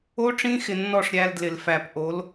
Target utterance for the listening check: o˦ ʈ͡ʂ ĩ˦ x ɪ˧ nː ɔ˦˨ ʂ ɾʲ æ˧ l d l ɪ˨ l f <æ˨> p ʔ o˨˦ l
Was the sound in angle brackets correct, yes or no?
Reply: yes